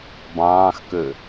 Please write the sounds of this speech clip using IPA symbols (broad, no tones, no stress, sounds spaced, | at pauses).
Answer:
b ɑ̃ː x k ø